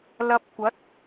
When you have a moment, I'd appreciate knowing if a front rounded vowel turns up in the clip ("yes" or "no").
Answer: no